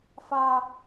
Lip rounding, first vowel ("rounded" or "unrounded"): unrounded